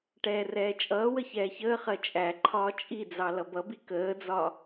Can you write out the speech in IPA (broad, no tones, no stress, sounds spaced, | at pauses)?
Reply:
ʈ ɛː r ɛː t͡ʃʼ ʌː w ə ç ɛː ç əː χ ɜ t͡ʃʼ æ ǃʰ ɒː t͡ʃʼ i d͡z ɑ l ʌ b ʌ b i k əː d͡z ɒ